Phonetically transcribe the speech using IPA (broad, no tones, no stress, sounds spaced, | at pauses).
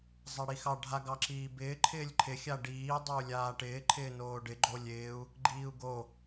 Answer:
zˤ a ɽ i x ɑ ɖʱ a ɡ ɑ ǁ iː b ɪː ǃʰ ɪː lʲ ǃʰ ɪ xʲ a ɖ iː dˤ o u̯ lʲ aː ʈ ɪː ǃʰ ɪː n oː ɖ ɪ ɡ͡ǃ o lʲ ɪː u̯ | ɡ͡ǃ iː u̯ ɡ o